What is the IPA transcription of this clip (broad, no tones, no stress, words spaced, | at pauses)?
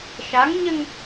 ʃaŋɲɘŋ